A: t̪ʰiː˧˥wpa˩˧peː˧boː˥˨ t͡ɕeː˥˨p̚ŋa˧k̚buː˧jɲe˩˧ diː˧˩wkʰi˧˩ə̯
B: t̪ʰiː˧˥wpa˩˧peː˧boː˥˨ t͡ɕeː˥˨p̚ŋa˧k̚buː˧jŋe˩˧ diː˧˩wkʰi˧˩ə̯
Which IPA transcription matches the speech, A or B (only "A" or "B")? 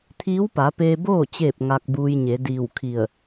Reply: A